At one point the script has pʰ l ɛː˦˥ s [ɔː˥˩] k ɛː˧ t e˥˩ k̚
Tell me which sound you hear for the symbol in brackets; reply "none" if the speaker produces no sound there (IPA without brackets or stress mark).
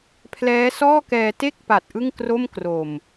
ɔː˥˩